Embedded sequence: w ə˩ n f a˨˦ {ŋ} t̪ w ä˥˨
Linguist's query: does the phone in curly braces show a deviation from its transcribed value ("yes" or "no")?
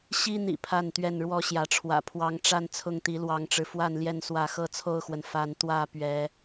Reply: yes